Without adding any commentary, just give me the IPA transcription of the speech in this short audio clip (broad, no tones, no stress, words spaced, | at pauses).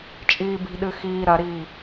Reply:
t͡ʃʼiːbi̤ɗɨ xiː ɾɐɾiː